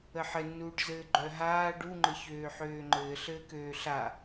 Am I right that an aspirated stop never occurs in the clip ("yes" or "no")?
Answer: yes